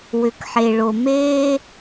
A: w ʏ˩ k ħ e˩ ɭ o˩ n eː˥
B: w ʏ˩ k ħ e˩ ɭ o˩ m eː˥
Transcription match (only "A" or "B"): B